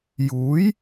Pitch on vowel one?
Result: rising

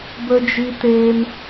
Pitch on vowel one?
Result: high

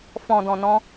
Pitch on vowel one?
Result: low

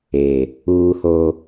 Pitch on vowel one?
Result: low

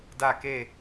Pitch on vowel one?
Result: falling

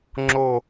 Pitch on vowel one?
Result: falling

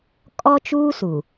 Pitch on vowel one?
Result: high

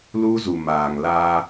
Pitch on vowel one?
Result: high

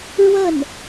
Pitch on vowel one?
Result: falling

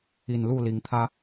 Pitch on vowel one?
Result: low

